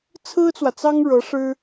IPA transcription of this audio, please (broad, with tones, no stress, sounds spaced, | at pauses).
t͡sʰ ɹ̩˥ t͡s w ä˨ t͡s ɑ˥ ŋ ɻ ɤ˧˥ ʂ ɻ̩˥